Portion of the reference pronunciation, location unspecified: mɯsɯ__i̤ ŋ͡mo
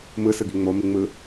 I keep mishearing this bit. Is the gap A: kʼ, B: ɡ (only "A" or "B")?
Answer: B